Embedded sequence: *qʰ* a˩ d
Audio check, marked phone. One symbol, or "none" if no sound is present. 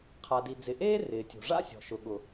qʰ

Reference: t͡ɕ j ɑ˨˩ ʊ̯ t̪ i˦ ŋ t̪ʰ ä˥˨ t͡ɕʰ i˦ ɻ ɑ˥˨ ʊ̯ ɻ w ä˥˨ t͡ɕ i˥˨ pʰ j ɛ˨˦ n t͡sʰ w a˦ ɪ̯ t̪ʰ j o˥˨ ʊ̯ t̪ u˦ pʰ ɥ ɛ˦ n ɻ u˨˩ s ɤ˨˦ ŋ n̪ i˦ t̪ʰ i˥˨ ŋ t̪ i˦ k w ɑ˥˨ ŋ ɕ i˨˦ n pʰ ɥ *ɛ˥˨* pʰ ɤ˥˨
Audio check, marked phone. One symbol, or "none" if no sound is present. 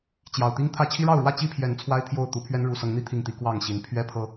ɛ˥˨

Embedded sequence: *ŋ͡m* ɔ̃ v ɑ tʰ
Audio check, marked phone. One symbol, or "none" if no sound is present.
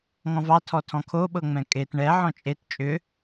ŋ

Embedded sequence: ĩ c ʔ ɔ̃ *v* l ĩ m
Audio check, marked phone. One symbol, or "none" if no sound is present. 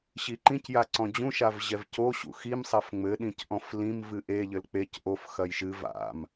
f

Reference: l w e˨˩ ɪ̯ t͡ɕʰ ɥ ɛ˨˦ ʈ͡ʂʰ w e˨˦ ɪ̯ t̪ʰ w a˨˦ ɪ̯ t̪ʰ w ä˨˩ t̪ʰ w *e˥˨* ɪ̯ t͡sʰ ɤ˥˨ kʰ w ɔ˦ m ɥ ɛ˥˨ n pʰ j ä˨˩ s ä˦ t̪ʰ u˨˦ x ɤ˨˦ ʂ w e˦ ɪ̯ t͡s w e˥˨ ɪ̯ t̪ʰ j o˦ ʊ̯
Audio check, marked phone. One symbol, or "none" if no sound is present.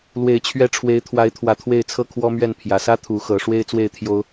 e˥˨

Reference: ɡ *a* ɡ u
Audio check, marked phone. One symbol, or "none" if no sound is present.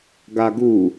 a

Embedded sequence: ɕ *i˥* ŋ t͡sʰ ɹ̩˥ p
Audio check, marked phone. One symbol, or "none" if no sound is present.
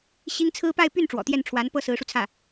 i˥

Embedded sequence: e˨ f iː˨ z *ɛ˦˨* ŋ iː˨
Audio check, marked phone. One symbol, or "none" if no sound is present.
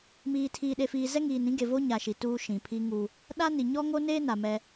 ɛ˦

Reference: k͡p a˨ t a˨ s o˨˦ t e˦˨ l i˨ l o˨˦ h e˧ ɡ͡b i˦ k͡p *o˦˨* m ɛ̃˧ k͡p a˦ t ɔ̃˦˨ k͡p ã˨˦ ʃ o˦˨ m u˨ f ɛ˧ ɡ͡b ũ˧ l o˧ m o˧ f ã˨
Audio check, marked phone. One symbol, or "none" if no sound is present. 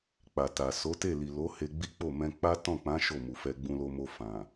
o˦˨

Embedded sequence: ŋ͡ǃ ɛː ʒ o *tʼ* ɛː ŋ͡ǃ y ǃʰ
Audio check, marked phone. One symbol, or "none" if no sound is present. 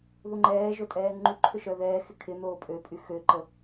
tʼ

